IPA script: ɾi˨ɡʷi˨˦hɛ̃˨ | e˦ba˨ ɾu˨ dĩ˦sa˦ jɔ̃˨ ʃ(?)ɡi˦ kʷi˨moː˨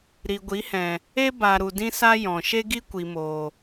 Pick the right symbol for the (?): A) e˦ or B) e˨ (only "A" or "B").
A